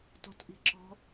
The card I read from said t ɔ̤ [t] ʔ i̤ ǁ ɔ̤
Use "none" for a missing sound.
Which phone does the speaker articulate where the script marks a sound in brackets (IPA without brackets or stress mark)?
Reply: t